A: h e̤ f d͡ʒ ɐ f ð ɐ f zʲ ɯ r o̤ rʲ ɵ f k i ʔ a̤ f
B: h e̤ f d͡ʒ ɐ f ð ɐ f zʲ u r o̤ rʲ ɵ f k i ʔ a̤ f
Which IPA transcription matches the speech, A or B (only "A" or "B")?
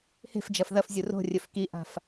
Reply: B